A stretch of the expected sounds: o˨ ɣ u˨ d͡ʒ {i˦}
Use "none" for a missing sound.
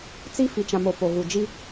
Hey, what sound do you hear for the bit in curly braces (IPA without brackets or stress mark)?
i˦